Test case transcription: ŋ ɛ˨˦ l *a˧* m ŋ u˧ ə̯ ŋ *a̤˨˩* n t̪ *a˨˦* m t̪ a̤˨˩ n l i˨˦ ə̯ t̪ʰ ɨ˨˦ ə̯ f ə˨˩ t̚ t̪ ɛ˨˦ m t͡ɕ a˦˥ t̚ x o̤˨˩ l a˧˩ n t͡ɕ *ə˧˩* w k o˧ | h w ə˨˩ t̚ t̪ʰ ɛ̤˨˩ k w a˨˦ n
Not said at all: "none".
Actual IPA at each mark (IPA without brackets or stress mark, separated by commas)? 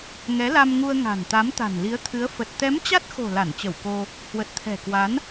a˧, a̤˨˩, a˨˦, ə˧˩